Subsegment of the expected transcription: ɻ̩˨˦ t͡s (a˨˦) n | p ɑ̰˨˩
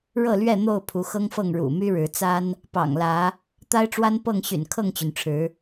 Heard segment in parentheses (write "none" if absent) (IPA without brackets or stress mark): a˦